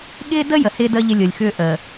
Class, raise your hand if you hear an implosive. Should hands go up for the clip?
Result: yes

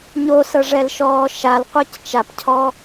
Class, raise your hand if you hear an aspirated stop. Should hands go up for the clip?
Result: yes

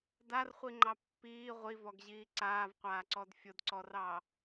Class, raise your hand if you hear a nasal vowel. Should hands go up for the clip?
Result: no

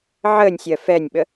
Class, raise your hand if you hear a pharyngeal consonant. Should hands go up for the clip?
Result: yes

